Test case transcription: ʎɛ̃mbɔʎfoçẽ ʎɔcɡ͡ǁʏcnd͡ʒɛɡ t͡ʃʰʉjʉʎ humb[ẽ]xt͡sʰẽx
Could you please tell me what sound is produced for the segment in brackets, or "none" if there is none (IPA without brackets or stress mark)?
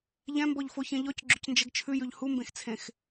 ẽ